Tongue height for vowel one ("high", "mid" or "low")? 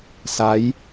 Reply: low